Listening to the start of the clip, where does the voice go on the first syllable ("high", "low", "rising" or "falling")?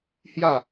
falling